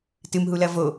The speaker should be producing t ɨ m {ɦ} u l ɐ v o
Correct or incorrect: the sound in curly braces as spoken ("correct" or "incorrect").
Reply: correct